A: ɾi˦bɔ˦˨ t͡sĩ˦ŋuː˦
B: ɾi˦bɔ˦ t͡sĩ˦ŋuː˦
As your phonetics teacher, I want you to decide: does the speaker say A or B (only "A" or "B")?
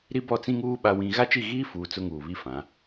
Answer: A